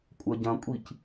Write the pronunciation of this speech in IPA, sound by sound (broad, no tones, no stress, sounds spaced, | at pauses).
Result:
kʷʼ ɐ ɟ ɐ̃ kʷʼ i c